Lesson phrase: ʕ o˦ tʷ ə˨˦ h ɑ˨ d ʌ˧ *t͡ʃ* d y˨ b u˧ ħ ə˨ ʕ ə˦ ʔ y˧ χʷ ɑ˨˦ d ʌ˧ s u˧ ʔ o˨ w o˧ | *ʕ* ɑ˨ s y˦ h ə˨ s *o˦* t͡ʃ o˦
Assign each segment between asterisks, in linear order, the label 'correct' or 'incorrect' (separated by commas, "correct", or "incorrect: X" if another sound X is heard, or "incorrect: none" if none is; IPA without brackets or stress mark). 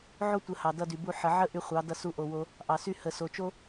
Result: incorrect: none, incorrect: ʔ, incorrect: o˨